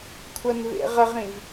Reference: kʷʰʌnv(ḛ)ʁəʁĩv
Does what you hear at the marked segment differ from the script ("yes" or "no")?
no